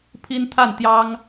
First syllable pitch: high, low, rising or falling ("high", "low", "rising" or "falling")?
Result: high